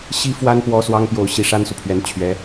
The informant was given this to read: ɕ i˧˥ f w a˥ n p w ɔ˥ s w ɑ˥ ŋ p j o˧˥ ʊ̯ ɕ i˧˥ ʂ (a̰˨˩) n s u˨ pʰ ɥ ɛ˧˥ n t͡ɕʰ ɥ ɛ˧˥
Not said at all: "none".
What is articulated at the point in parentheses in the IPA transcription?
a˥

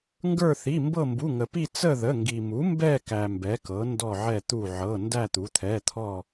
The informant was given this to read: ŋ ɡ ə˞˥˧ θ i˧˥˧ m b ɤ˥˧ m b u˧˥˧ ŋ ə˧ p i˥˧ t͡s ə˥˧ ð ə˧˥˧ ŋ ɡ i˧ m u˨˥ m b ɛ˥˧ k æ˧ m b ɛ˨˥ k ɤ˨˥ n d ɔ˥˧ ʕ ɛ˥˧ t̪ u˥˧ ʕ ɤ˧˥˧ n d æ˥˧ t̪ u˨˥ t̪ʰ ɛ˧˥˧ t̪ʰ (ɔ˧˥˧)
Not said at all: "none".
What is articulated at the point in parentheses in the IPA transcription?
ɔ˥˧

